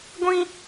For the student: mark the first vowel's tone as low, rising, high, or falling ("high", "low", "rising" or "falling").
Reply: high